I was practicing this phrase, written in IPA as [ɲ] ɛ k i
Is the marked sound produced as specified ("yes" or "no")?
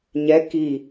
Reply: yes